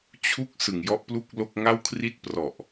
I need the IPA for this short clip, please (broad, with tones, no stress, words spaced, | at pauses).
t͡ɕʰu˦˥k̚ sɯ˨˩ŋjɔ˦˥ʔplu˥˩k̚lo˥˩k̚ ŋa˥˩wkʰri˥˩t̚ prɔ˨˩ʔ